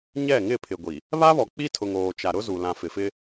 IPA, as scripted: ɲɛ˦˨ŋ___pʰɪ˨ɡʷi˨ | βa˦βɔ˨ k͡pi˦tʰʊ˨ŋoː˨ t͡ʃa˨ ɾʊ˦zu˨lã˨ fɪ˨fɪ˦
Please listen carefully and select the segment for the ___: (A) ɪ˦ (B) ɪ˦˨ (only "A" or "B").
B